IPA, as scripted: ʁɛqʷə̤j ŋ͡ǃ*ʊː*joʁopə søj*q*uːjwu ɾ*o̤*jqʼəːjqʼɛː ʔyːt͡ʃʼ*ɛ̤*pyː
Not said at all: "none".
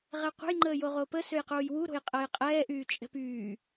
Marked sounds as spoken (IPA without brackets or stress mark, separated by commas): əː, q, o̤, ɛ̤